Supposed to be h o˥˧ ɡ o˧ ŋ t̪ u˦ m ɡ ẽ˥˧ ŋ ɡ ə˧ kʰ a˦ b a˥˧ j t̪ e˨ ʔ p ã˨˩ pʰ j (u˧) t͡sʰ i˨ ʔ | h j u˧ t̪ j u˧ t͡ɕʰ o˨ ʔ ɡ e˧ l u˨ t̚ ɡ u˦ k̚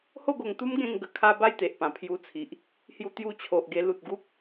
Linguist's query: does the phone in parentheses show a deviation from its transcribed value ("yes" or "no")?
no